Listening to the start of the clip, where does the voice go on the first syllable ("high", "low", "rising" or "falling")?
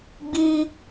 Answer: high